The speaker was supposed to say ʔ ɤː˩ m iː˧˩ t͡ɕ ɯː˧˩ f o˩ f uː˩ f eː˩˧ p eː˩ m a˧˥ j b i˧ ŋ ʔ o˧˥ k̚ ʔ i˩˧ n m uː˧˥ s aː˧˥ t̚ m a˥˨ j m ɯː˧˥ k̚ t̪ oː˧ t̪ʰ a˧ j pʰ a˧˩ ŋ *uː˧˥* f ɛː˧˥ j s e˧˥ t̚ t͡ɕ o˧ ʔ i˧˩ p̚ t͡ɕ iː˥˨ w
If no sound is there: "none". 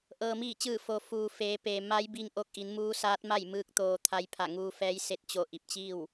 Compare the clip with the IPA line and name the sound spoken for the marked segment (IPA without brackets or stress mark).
uː˧